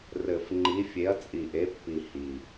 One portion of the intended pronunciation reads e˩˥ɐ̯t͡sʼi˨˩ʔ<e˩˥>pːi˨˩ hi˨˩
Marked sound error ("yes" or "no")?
no